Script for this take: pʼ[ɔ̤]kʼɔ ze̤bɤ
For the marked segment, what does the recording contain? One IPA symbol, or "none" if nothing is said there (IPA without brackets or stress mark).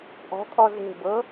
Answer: ɔ̤